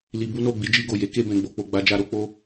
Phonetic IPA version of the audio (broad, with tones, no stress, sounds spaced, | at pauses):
l i˧ b u˦ n o˦˨ ɡ͡b i˨˦ d͡ʒ i˧ ɡ o˨ j e˨˦ k e˦˨ b ɛ̃˧ ɡ͡b o˧ k͡p o˧ ɡ͡b a˦ d͡ʒ a˦ ɾ o˦ k͡p o˦